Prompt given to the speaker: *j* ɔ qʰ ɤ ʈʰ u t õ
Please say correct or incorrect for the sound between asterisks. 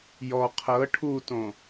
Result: correct